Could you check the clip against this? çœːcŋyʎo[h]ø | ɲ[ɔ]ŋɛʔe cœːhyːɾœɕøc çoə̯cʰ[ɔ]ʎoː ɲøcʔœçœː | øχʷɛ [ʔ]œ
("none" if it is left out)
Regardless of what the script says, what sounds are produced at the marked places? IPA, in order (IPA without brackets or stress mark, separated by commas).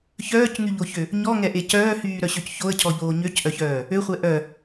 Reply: ç, ɔ, ɔ, ʔ